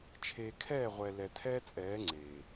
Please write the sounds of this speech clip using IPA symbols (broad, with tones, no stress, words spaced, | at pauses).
t͡ʃʰeː˨kʰɛː˦˨ʁʷɛ˨ lɛ˨tʰɛː˦t͡sʼɛː˨˦ ŋ͡ǀeː˨